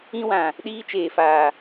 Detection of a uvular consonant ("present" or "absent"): absent